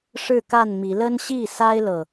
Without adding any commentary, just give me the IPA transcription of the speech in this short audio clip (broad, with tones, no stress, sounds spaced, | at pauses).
ʂ ɻ̩˥˨ k a˥˨ n m i˨˦ l ə˦ n ɕ i˥˨ s a˦ ɪ̯ l ɤ˥˨